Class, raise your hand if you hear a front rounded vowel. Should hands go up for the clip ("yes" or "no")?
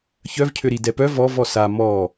yes